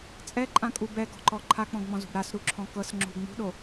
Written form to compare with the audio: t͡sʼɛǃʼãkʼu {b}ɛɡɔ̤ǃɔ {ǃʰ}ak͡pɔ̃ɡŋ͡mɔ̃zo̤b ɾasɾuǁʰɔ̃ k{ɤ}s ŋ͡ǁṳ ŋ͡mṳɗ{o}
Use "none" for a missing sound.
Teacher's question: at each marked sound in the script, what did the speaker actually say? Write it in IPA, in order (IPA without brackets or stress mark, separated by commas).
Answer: b, ǃʰ, ɤ, o